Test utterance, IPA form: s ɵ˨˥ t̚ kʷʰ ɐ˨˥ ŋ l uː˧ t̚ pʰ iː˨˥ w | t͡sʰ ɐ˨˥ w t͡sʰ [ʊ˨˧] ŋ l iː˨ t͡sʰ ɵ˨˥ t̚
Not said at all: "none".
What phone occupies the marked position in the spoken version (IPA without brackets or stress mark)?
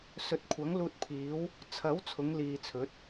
ʊ˨˧